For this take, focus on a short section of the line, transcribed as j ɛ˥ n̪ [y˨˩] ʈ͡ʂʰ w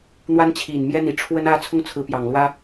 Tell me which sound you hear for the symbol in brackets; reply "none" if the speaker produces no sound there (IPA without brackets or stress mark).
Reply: i˨˩